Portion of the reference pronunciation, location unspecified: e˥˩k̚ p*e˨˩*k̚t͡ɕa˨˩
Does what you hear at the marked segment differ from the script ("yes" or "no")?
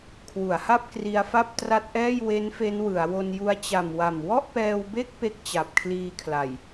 yes